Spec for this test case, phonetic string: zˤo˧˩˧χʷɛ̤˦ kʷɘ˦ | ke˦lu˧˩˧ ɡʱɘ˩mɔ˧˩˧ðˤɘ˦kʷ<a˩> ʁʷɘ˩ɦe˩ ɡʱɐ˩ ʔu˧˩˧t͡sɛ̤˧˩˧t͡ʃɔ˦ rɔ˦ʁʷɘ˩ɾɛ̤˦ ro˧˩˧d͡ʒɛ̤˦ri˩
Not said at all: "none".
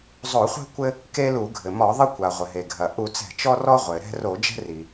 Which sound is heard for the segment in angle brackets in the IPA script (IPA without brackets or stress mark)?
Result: a˩